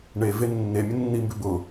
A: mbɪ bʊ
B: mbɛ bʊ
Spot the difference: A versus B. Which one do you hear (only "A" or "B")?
A